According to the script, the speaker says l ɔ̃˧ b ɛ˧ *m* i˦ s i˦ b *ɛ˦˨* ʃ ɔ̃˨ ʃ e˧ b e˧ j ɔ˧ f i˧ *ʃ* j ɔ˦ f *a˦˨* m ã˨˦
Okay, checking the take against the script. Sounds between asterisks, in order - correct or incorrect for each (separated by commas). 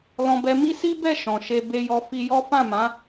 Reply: correct, correct, incorrect, incorrect